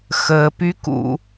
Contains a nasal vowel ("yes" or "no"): no